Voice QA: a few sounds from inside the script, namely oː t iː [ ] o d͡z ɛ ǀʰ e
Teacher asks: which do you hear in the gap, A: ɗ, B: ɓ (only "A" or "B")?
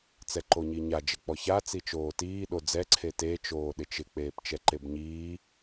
A